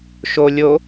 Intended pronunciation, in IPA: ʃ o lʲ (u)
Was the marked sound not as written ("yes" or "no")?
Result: yes